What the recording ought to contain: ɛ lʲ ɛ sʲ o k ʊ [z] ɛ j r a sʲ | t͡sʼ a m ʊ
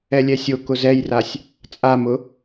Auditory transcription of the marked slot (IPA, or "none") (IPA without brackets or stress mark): z